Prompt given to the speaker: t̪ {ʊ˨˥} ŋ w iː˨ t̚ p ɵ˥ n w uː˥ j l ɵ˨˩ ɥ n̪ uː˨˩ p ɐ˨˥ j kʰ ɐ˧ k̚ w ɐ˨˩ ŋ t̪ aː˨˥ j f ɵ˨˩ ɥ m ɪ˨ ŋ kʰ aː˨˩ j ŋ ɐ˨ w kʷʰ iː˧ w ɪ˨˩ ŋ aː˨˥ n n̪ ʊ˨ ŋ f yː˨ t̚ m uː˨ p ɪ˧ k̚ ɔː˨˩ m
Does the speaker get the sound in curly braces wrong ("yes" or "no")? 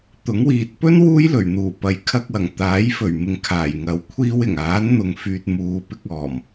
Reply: no